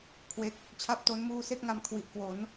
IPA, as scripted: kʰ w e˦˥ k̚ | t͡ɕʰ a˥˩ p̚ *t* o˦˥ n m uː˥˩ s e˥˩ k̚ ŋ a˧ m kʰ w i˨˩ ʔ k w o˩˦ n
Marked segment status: correct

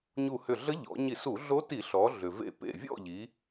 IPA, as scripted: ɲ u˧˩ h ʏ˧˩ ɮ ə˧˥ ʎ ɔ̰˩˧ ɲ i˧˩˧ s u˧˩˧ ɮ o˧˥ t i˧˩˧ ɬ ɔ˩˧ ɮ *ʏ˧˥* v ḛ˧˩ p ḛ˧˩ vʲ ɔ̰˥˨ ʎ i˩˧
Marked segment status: incorrect: ʏ˩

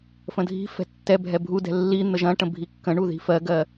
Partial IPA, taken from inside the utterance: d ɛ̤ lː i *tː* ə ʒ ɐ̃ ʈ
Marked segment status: incorrect: n̪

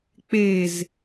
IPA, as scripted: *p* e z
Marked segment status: incorrect: k͡p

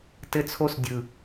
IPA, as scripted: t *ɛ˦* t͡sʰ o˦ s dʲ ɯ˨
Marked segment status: incorrect: ɘ˦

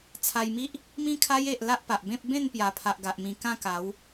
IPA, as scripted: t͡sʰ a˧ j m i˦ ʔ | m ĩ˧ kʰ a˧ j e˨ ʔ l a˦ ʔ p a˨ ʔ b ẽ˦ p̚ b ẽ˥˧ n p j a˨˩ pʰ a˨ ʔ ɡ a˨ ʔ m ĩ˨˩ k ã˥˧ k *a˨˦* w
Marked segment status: correct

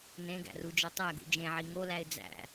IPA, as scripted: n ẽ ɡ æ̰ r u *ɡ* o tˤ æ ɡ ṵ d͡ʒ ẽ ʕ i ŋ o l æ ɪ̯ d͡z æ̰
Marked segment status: incorrect: d͡ʒ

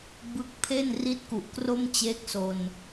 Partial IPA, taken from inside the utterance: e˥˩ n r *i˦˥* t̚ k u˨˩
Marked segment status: correct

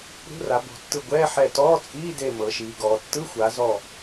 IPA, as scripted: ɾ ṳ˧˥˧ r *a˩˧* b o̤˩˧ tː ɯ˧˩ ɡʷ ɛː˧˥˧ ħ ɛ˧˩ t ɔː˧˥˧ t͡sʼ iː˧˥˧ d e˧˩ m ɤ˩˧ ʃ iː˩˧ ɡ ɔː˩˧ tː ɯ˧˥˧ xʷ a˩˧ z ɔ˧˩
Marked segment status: correct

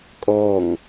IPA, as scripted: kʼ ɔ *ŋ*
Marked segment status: correct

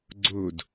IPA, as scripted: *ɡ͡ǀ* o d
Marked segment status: correct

